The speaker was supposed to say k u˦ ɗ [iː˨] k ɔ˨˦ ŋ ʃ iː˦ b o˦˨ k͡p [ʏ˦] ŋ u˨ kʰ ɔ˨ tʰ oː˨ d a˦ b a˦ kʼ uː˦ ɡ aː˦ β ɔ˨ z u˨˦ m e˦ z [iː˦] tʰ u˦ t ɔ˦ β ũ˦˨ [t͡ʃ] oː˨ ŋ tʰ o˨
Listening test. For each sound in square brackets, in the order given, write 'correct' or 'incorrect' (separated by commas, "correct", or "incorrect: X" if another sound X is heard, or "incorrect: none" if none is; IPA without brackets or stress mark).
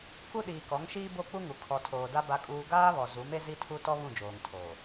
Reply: correct, incorrect: u˦, incorrect: i˦, incorrect: d͡ʒ